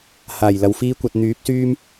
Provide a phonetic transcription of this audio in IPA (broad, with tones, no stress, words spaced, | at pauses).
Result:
haː˨˩j lɐ˨˧wfiː˥kʷɐ˧t̚ n̪yː˨˥p̚syː˥m